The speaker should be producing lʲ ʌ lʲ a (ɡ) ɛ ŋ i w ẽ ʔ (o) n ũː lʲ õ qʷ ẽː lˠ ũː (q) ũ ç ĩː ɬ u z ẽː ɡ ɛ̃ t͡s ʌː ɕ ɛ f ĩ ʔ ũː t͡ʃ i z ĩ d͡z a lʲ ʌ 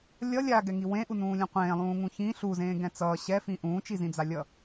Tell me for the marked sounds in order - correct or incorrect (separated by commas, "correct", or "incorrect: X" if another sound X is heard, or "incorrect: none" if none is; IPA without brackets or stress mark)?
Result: correct, incorrect: u, incorrect: ŋ